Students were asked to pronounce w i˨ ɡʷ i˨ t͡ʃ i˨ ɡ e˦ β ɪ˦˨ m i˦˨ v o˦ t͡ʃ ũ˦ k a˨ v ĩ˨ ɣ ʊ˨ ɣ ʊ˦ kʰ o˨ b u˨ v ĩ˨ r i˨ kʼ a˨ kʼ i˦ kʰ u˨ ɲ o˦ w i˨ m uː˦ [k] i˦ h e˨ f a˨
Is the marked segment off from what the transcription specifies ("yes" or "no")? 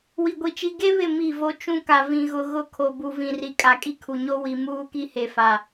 no